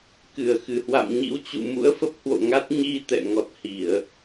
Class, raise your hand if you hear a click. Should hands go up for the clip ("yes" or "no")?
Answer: no